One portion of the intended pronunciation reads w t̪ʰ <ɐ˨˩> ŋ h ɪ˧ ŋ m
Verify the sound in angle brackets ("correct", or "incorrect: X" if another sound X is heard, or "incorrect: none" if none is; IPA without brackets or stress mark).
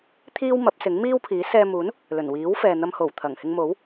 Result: correct